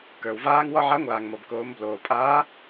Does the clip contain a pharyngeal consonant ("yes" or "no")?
yes